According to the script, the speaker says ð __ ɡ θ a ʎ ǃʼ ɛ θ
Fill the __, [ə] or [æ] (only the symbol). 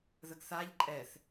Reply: ə